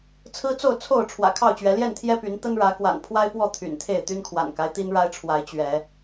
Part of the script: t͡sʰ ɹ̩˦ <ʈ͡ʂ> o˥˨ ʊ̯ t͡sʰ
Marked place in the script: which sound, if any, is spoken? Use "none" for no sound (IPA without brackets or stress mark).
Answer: t͡s